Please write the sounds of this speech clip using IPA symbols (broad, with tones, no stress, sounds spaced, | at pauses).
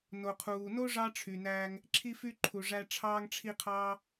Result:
n o˩ qʰ uː˩ n o˥ ʐ ɑ˥ ʈ͡ʂʰ y˩ n æː˧ ŋ | ǁʰ i˧ f y˧ ǃʰ u˩ ʐ æ˧ ʈ͡ʂʰ ɑː˧ ŋ ʈ͡ʂʰ i˧ qʰ ɑː˧